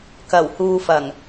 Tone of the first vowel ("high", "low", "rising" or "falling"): low